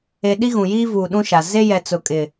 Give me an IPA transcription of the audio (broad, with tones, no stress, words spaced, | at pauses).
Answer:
e˨ ɗi˦ɣũ˨jiː˦vuː˨ ɗũ˦ʃa˨ ze˦jɛ˨ t͡sʊ˨kʼɪ˨